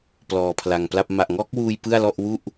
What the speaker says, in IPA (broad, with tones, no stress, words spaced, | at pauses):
plɔː˧pʰla˧ŋpla˥˩p̚ ma˨˩ʔŋɔː˦˥k̚wuː˧j pɯ˥˩a̯lɔ˥˩ʔ wu˥˩ʔ